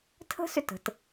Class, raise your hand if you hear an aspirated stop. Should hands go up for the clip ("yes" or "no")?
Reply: yes